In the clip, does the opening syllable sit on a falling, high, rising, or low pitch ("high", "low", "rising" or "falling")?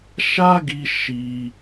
high